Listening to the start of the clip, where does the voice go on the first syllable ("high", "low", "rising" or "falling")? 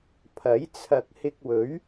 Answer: rising